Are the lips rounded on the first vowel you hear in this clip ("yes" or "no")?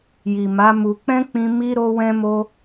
no